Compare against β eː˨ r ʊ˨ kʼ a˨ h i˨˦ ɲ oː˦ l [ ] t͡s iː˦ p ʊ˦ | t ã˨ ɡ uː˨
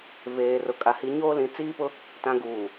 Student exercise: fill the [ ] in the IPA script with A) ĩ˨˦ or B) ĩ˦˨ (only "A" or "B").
A